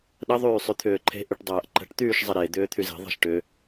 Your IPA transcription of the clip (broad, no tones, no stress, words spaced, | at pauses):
ɗə ðˤyːsˤyt̪ʰʏːǃʰe̤ ʔyʈdˤɐːʔǃə̤ʈ t̪yːʃzˤəɾe d̪ʏːt̪ʰyze̤ ðˤɛ̤ʃʈʏ